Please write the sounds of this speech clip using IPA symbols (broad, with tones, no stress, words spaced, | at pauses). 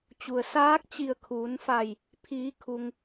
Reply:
t͡ɕu˩ə̯saː˧˥k̚ t͡ɕi˧˩ə̯kʰuː˩˧nfa˧˩j | pʰiː˩˧kʰu˩ŋ